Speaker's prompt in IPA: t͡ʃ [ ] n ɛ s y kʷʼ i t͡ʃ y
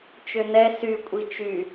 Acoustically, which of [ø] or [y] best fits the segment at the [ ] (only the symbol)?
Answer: ø